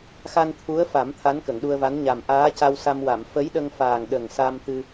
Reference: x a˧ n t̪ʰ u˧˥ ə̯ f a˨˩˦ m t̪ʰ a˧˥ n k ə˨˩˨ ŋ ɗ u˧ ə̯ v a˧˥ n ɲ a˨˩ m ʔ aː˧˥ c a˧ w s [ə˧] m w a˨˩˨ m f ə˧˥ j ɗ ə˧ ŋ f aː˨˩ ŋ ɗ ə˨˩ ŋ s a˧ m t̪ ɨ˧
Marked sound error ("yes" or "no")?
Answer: yes